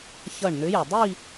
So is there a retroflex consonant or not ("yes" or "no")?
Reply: yes